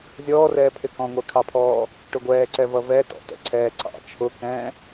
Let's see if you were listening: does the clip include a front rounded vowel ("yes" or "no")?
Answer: no